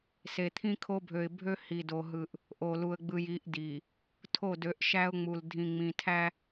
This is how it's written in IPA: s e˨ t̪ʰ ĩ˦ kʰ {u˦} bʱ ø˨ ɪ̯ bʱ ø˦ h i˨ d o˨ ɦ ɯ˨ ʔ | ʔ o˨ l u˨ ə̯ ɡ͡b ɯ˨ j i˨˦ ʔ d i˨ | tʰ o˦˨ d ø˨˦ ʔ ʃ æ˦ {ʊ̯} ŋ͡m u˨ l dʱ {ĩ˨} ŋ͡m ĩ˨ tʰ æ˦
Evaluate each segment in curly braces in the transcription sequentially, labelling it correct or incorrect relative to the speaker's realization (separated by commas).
incorrect, correct, correct